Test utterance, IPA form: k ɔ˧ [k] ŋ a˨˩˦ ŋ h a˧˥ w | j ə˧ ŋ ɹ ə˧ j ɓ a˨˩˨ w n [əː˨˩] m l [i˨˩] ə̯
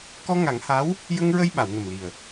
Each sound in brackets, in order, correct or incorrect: incorrect: none, incorrect: ə˨˩, correct

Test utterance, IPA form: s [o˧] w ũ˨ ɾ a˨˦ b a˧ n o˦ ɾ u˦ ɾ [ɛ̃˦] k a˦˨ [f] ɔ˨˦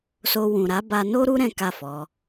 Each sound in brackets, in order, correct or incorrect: correct, correct, correct

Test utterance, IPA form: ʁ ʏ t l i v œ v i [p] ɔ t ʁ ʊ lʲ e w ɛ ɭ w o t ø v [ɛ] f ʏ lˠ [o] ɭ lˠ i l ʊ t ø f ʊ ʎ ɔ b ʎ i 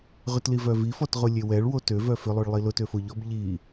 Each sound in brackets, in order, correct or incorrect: incorrect: f, incorrect: œ, correct

